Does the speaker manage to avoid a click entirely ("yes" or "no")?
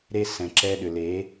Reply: no